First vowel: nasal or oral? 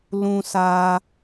nasal